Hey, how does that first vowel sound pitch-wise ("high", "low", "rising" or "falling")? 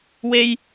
high